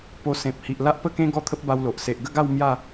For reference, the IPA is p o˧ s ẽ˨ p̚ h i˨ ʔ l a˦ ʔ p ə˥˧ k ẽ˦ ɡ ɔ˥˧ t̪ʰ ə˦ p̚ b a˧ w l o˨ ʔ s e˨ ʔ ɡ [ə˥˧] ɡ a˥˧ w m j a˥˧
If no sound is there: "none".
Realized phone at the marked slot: ə˥˧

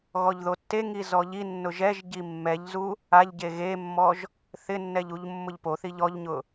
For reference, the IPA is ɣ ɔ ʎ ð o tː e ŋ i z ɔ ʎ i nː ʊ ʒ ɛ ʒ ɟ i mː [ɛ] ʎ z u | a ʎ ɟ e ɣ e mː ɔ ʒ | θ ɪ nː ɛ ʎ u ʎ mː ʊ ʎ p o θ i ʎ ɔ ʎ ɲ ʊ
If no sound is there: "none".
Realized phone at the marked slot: ɛ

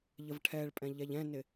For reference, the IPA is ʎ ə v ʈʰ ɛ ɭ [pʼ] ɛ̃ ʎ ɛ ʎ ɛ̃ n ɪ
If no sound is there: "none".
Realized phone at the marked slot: pʼ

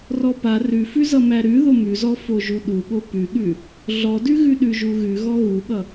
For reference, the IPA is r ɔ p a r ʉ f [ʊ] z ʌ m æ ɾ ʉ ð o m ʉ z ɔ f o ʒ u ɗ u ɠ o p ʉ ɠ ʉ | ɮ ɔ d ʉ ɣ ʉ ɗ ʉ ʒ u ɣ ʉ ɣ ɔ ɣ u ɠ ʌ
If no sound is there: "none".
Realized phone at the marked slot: ʉ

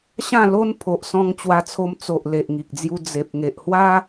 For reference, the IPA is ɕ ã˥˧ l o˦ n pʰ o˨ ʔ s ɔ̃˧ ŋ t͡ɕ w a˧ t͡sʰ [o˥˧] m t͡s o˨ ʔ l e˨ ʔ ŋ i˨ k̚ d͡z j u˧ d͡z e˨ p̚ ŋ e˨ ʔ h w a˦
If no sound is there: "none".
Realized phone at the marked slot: o˧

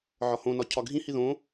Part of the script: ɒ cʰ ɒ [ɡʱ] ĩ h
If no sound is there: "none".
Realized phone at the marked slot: ɡʱ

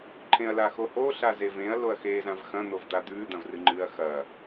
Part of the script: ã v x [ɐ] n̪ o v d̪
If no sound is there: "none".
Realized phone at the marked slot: ɐ̃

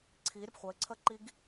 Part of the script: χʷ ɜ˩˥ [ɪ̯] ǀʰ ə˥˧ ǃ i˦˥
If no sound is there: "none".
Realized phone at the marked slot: ɪ̯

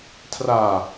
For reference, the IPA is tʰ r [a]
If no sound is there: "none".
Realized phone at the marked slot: a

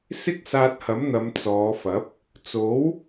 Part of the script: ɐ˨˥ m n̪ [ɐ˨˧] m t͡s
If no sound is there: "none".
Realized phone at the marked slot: ɐ˨˧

